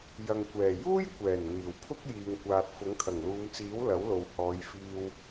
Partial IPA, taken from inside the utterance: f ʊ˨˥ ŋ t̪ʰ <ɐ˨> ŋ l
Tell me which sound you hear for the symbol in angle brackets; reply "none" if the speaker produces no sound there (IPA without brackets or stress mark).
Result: ɐ˨˩